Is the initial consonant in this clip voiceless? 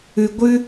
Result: no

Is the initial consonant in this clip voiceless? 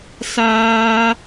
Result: yes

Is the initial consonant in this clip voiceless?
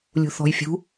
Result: no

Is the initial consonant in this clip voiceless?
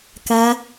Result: yes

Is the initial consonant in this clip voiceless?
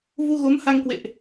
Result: no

